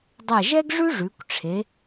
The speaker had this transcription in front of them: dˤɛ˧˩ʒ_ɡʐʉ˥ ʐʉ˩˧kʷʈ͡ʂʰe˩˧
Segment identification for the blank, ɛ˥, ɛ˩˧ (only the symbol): ɛ˥